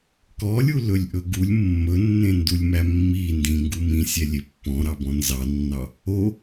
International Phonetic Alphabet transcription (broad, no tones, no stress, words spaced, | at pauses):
kɔlʲulɵlʲʔɵ ɡulʲ mːɵnːẽndulʲmæ mːi ndĩŋɡu mĩsʲɛlʲe pːɔ̃ɾɑbɔ̃ nzɑnːɑ | o